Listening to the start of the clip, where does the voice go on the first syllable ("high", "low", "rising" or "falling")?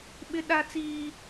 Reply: high